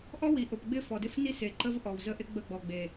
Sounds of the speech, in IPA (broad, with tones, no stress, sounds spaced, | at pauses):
ʔ ɔ˦ w i˨ ʔ ʊ˨ p ɡ͡b ɪ˦ f ɔ˨ d ɪ˦ f n i˦ s e˨ ǃ ə˦ v ʔ ɔ˨ w z ə˦ ʔ ɪ˦ ɡ͡b ə˦˨ ɡ͡b ɔ˨ ɡ͡b e˨